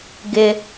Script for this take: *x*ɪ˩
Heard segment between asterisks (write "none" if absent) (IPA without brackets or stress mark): ɡ